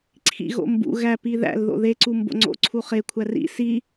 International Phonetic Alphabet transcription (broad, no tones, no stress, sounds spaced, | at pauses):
ǀʰ ḭ ɣ o̰ m b ṵ ɣ æ p i ð æ̰ l ð o̰ ð e ǀ u m b o̰ ŋ͡ǀ o̰ ǀʰ u χ e kʷʰ æ r ḭ s i